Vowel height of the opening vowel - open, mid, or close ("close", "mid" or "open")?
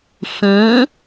close